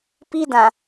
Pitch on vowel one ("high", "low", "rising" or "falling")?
high